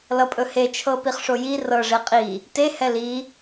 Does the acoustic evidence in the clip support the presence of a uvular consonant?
yes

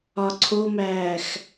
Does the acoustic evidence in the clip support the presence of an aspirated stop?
yes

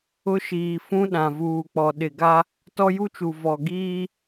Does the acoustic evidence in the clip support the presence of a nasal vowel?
yes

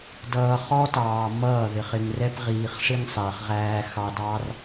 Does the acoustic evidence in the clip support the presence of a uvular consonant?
yes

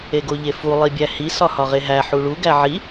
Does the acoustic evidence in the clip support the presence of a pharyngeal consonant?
yes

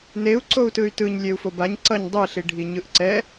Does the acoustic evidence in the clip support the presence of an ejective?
no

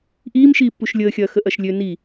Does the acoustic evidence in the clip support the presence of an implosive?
no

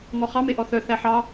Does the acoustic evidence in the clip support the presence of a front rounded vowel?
yes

